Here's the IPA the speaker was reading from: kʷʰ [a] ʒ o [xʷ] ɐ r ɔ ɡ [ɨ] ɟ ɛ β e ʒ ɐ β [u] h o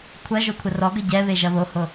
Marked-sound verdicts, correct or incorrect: incorrect: ɐ, incorrect: kʷʰ, incorrect: ə, incorrect: o

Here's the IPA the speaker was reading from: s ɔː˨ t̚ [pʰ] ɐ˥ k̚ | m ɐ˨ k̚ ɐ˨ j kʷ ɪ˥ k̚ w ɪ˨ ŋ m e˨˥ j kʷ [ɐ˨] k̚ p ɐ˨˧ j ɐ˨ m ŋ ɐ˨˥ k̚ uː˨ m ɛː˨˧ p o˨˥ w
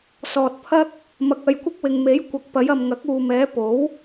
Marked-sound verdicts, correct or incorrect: correct, correct

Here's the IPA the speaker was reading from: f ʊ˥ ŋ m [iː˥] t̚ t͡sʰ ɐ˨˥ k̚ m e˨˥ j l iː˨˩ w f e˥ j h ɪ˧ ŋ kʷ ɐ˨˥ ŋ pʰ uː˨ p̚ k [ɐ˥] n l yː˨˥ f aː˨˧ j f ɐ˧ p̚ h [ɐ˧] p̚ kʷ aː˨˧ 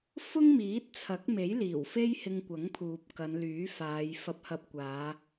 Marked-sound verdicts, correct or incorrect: incorrect: iː˨˥, incorrect: ɐ˨˧, correct

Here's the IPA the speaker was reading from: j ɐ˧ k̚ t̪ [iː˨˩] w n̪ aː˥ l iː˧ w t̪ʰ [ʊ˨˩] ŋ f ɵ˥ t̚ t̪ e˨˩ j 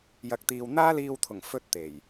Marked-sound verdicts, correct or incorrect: incorrect: iː˧, correct

